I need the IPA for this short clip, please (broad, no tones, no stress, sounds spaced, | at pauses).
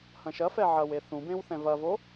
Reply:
h ɐ̃ ʃ ɐ f ɛ ʕ ɐ w e θ ũ b ẽ w θ ɛ̃ v ɐ v o